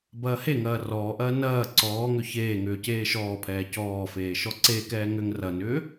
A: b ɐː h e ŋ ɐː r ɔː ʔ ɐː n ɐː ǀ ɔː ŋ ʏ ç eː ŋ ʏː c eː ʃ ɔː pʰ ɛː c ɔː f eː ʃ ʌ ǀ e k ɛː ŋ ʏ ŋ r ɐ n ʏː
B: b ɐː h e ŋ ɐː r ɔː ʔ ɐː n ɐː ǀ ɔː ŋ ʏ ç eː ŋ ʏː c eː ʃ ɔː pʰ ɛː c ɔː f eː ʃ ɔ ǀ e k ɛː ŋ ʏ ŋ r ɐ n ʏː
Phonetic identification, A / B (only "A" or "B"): B